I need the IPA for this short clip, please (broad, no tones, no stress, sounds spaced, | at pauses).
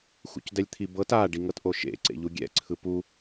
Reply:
x ṵ c d ɛ lʲ t̪ʰ i b ɤ t a ɖ i ŋ ɤ t ʔ o ʃ ḛ ǀ ḛ ʎ u ɡʲ ɛ̰ ǀʰ ɯ p u